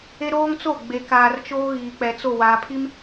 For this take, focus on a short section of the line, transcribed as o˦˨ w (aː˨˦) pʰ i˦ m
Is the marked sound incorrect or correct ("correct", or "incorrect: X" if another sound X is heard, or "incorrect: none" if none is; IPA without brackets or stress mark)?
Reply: incorrect: aː˨